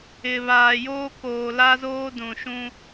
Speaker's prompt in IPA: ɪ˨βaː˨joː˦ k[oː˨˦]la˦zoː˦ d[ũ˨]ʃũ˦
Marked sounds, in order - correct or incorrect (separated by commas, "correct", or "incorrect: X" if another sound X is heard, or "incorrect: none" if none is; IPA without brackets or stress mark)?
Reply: incorrect: oː˨, correct